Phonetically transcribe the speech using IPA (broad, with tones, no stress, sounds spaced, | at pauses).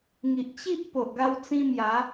ŋ i˨ ʔ t͡ɕ i˦ ʔ p o˨ ʔ ɡ a˦ w t͡s ĩ˦ m j a˨˦